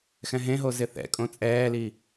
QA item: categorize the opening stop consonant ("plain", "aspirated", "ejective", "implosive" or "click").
ejective